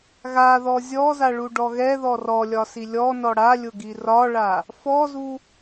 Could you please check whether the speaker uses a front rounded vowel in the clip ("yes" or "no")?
no